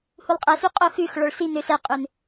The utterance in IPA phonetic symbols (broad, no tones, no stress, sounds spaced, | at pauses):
h u lˠ qʼ æ s y qʼ o x ʉ x ɭ ɔ ɭ s i n ø s ɛ qʼ ø n